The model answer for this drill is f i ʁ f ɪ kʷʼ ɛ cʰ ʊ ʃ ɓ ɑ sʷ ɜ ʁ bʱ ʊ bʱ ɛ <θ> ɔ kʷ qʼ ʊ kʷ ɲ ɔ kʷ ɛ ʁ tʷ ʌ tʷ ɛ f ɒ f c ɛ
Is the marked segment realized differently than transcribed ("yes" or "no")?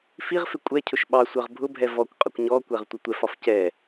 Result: yes